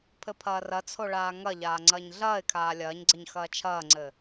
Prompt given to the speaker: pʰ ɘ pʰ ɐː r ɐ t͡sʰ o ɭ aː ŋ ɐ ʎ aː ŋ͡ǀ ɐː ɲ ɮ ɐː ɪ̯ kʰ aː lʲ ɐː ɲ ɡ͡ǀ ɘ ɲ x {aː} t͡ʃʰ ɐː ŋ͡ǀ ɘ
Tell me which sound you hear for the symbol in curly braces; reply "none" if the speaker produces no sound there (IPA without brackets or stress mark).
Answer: ɐː